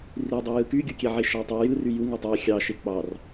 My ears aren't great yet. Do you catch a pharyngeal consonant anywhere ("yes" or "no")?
yes